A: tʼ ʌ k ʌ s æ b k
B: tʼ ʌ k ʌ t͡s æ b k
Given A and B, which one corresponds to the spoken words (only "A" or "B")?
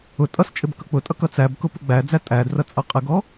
B